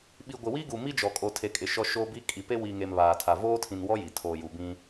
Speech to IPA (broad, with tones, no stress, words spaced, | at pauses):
ɓi˨ɡʷɪ˨ wi˦ɡu˨ mi˦d͡ʒɔ˨kʼo˨ tʰe˨kʼɪ˨ ʃɔ˦ʃo˦bi˦ kʼi˨pe˦wi˨ŋe˨m βaː˨tʰa˨ voː˦tʰĩ˨nwɔ˦ ji˨ tʰoː˨ju˨bĩ˦